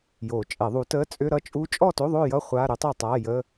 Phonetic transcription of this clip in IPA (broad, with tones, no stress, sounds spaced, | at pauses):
j o˨˩˦ t͡ʃʼ ɛ˨˩˦ ðˤ u˨˥ t ə˧˥˧ t͡sʼ ʏ˧˥˧ ɾ ʌ˦˥ t͡ʃʼ u˦˥ t͡ʃʼ ɔ˥˨ t o˧˥˧ ðˤ o˥˨ j ʌ˥˨ χʷ a˧˥˧ ɾ ʏ˦˥ tˤ ɛ˥˨ tˤ a˧˥˧ j ə˧˥˧